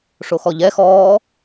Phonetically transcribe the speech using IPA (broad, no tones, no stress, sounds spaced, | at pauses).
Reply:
ʂ o x ɔ ʎ ɛ x ɔː